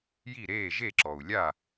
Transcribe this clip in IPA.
j i˥˩ ɾ eː˥˩ ʒ e˥˩ ǁ ɔ˩ u̯ lʲ a˥˩

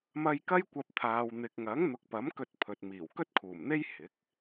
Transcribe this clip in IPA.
m ɐ˥ j k ɐ˥ j kʷ ɐ˧ p̚ t̪ʰ aː˨ w n̪ ɪ˨ k̚ ŋ ɐ˨˥ ŋ n̪ ʊ˨˥ k̚ p ɐ˨˥ m k ɵ˧ t̚ pʰ ɵ˨ t̚ m iː˨˩ w k ɵ˥ t̚ kʰ uː˨˩ m n̪ e˥ j h ɪ˨˥ k̚

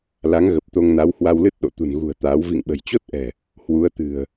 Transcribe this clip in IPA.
l a˨˦ ŋ ɣ ə˨˩ p̚ t̪ o˧ ŋ n a˨˦ w h w a˧ w l ɨ˦˥ t̚ ɗ o̰˧˨ t̪ ṳ˨˩ n ɣ ṳ˨˩ ə̯ t̪ aː˨˦ w v ḭ˧˨ ŋ ɓ ə̤˨˩ j t͡ɕ o˦˥ t̚ ʔ ɛ̤˨˩ | h w u˨˦ ə̯ t̪ ɨ̤˨˩ ə̯

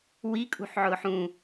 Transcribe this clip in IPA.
w i kʼ ṳ ħ ʕ ʊː ħ ũ

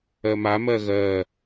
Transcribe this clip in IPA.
ɜ m a m ɜ ɣ ɜ

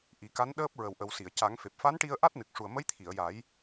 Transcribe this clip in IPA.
ʔ i˨˩˦ k a˧˥ n ɗ əː˦˥ p̚ ɹ ə˨˩ w ʔ ə˨˩ w s i˨˩˨ ə̯ c a˨˩˦ ŋ f e˨˩ p̚ f a˧˥ n ʈ i˧ ə̯ ʔ a˦˥ t̚ n ɨ˨˩ k̚ ʂ u˨˩ ə̯ m ə˧˥ j t̪ʰ i˨˩˨ ə̯ j a˨˩˦ j

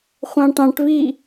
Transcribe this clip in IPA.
χʷ ɑ̃ ʈ ɑ̃ ʈ v i

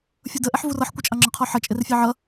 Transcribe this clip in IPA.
fʲ ʊ d ə ʔ ɛ ħ v u r ʌ ħ kʷ ʌ t͡ʃʼ ɑ ŋ͡ǁ ɒ qʰ ɔ ħ ʌ t͡ʃʼ ɪ r fʲ ɛ ʕ ʌ

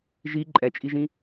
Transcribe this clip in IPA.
ʒ i ǃʼ ɛ t͡ʃʼ i ʒ ĩ

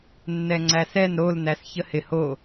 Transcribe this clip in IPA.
nː ɛ ŋ͡ǀ æ s ɛ n ɾ o l n æ s ç ə h ɪ h o

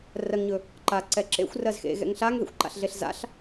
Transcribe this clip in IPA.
r ɜ ŋ ɲ ɵ | ǃ a ǀ ɛ ǁ ḛ xʷ r ɜ z x ḛ ɣ ɛ̰ ŋ ɬ a ŋ ð ḛ xʷ ǃ a̰ ɬ ɮ e ɬ z a̰ ɬ

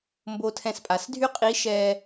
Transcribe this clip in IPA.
m b o˧ tʰ ɛ̃˧ s pʼ a˩˧ s dʱ y˥ qʼ i˧˥ ʃ ɛː˧

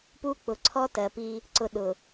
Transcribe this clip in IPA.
p u˦ k͡p ʊ˨ ǀʰ ɔ˦ t ɜ˨ p i˦ | ǀ ʊ˨ ɗ ʊ˨

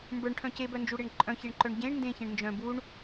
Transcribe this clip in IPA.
m b ə˞ ɳ ʈʰ œ̃ c e b œ n d͡ʒ u ɽ e ɳ ǃʼ œ̃ ç e ɳ ǃ œ ɳ ɟ ẽ ɳ n d ẽ ç ẽ ɳ n d͡ʒ œ̃ b u ɳ

